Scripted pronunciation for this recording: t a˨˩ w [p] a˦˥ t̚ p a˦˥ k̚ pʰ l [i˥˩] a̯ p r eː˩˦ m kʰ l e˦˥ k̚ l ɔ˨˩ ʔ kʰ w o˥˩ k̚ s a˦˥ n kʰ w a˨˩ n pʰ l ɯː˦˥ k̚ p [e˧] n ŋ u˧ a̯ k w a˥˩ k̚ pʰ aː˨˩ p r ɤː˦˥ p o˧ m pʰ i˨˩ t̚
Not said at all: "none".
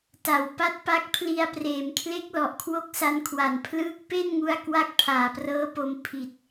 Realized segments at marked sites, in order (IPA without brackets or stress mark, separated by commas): p, i˧, e˥˩